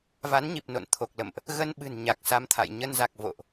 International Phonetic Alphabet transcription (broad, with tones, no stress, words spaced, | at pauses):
va˨˦nɲi˨˩p̚no̰˧˨n t̪ʰo˨˩k̚lə̰˧˨mʔ | ɣə˧nɓɨ̤˨˩n ɲa˨˩k̚sa˧mt̪ʰa̰˧˨j ɲə˧nza˨˩k̚ vo̰˧˨ʔ